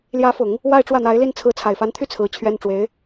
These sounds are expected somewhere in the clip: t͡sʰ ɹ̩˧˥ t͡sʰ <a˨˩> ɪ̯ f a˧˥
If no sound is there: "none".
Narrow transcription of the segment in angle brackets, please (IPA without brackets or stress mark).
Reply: a˨˩